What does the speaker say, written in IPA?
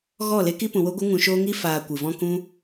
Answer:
ɣ ɔ˦˨ l e˦ k i˦ p ũ˧ w o˦ ɡʷ ɨ˦ ŋ ũ˧ ʃ oː˦ ŋ i˦ f aː˧ kʷ ɨ˨ v ɔ̃˦ k ũ˦

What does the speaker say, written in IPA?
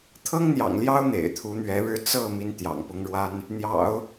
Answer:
t̪ʰ ɤ˥ ŋ n̪ j ɑ̰˨˩ ŋ l j ɑ˥ ʊ̯ n̪ ḛ˨˩ ɪ̯ t̪ʰ u˧˥ n̪ ɥ ɛ˧˥ ɻ ɻ̩˥˧ t͡s ɤ˥˩ m i˥ n t̪ j ɑ̰˨˩ ŋ p ʊ˥ ŋ ɻ w a˥ n | n̪ j ɑ̰˨˩˦ ʊ̯

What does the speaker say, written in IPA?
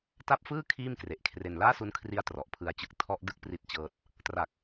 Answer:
t a˦˥ p̚ f ɯː˥˩ kʰ iː˥˩ m k r e˨˩ ʔ kʰ r e˧ n l aː˥˩ s u˦˥ n kʰ r i˦˥ a̯ t r ɔ˨˩ ʔ pʰ ɯ˦˥ a̯ t͡ɕ ɯ˦˥ k̚ tʰ ɔ˦˥ ʔ d ɯ˦˥ k̚ p r i˦˥ t̚ t͡ɕ ɤː˦˥ t̚ | t r a˨˩ k̚

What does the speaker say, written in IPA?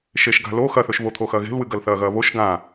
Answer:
ʃ e ʃ ɡ a̤ l o x ɐ θ ɵ ʃ β o t̪ʰ o x ɐ ɣ e̤ l w ɨ ɡ ɐ l θ ɐː ɣ ɐː β o ʃ ɡ ã

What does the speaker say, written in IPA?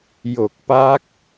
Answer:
j o˨˩ k̚ p a˦˥ k̚

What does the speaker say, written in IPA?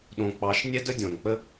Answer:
ɗ õ˨ k͡p ɑ˨˦ ʃ nʲ ɛ˦ d ə˦ dʲ õ˨ n k͡p ə˦

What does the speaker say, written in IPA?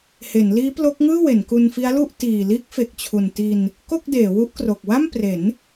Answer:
h e˩˦ n l iː˦˥ p l o˦˥ k̚ ŋ ɯː˥˩ w e˩˦ n k u˧ n f i˦˥ a̯ l u˥˩ ʔ t iː˨˩ l iː˦˥ k̚ f e˨˩ k̚ t͡ɕʰ u˨˩ n t i˧ n | k o˥˩ k̚ d eː˩˦ w u˦˥ ʔ k r o˨˩ k̚ w a˥˩ m p r e˩˦ n

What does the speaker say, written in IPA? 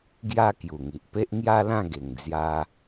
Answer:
ɡ j a˦ k j u˨˩ ŋ i˨ ʔ p e˦ ʔ ŋ j a˦ l ã˥˧ ɡ e˨˩ ŋ d͡z j a˧

